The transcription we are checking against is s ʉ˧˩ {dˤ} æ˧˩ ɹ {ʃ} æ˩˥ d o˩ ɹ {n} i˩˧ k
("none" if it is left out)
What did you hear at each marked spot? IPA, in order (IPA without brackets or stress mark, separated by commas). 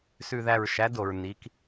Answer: ð, ʃ, n